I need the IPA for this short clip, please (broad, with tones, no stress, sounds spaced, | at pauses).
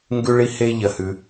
ŋ ɡ ʉ˧ ɭ i˧ h e˧ ʎ ɐ˩ h ʉ˩